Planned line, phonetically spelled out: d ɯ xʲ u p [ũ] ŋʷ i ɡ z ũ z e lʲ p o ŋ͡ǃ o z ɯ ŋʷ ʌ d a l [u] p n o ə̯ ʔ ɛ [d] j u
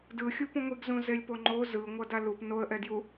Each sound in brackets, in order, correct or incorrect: correct, correct, correct

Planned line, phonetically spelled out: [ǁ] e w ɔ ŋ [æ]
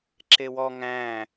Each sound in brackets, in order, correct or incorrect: correct, incorrect: æ̃

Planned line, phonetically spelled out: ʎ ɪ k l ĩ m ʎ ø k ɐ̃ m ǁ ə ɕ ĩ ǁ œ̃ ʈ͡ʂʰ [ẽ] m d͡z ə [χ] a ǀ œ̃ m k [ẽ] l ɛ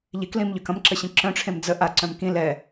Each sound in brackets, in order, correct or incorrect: correct, incorrect: ʔ, incorrect: ĩ

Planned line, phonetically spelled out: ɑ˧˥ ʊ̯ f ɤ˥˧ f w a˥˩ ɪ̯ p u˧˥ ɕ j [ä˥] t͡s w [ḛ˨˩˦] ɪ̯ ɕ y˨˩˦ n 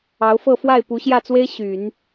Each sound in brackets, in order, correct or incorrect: incorrect: ä˥˩, incorrect: e˥

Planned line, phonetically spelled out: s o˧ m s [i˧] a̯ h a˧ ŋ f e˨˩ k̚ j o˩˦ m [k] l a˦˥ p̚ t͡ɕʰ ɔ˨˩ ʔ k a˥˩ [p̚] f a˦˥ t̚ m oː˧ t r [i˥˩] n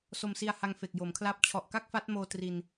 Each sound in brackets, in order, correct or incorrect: correct, incorrect: kʰ, incorrect: k̚, incorrect: i˧

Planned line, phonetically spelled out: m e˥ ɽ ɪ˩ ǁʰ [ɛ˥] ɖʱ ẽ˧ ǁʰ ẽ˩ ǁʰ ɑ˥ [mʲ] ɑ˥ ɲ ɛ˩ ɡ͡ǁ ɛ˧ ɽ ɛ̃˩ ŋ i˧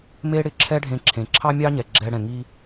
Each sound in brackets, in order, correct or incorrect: correct, correct

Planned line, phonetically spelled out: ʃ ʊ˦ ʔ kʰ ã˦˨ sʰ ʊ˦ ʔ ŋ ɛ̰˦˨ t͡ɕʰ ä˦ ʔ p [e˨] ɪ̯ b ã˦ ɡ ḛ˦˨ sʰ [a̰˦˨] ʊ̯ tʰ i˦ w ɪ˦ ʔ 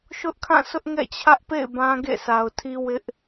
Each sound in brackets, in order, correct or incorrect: incorrect: ḛ˦˨, incorrect: a˨

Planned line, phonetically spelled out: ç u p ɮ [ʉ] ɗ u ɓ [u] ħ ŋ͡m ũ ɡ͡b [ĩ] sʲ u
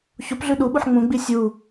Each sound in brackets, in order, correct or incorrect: correct, correct, incorrect: i

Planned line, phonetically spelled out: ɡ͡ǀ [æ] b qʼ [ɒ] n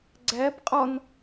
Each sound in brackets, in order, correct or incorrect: correct, correct

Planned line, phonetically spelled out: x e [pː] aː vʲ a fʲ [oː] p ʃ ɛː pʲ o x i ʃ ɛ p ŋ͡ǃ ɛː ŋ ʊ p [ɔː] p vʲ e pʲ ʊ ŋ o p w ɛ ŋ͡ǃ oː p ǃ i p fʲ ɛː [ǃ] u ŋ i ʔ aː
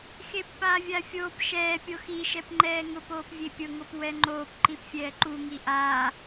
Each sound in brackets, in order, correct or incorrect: correct, correct, incorrect: oː, correct

